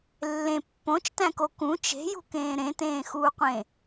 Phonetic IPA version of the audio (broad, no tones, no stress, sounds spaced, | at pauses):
lː ẽ pː õ t͡ʃ t æ̃ k o k ũ t͡ʃ e̤ j ṳ k ẽː ɾ ẽ t ẽː x uː qʷ ẽ